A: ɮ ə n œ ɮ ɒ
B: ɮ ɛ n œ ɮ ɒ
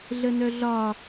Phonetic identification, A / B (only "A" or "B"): A